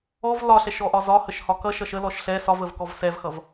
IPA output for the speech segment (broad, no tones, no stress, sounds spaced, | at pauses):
ɔ v l ɒ ɬ ɛ ʃ ɔ ʔ ɒ z ɒ h ə ʃ h ɒ k ʌ ʃ ʌ ʃ ə l ɔ ʃ ɬ ɛ s ɒ v ə v k ɔ v s ɛ v x ʌ v